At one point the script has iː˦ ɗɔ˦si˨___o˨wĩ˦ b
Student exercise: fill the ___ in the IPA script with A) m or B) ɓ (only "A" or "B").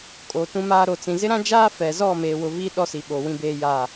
B